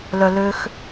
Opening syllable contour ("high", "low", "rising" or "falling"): low